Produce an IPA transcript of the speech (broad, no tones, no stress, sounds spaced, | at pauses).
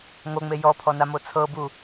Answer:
ŋ o ŋ͡m e j ɔ pʰ ɔ n a m o t͡sʰ ɤ b u